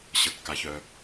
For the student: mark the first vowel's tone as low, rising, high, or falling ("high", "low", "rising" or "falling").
low